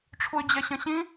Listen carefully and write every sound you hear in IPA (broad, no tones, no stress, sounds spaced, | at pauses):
ʈ͡ʂʰ u y̯ d͡ʑ ɛ ɕ ə̃ ɕ ĩ